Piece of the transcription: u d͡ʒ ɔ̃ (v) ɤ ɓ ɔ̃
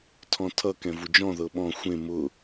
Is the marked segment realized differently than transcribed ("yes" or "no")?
yes